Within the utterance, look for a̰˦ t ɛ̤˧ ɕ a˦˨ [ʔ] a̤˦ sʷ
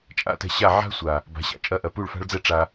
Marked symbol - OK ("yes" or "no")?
no